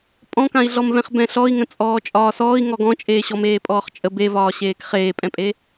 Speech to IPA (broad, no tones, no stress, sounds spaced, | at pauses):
pʼ ɔ̃ k ã i̯ ɮ ɔ m v ɛ̃ χ b ɛ̃ ɬ ɔ i̯ ŋ ə̃ t͡sʼ ɔː t͡ʃʼ ɒː s ɔː i̯ ŋ ɔ ɡ ɔ̃ t͡ʃʼ eː ɕ ɔ m eː pʼ ɔː χ t͡ʃʼ ə b e v ɒː ɕ eː k χ eː pʼ ɛ̃ pʼ e